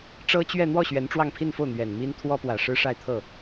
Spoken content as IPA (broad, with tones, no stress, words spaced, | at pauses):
ʈ͡ʂɤ˥t͡ɕɥɛ˥˧ n̪wɔ˥˩ ɕɥɛ˧˥nʈ͡ʂwɑ˥˧ŋ pʰi˥˧nfo˥˩ʊ̯ n̪ɥɛ˨˩nmi˥n t̪ʰwɔ˥pwä˨˩ʂɻ̩˥ ʂa˥˧ɪ̯t̪ʰɤ˥˩